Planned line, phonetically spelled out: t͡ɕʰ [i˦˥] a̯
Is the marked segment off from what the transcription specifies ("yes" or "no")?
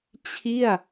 yes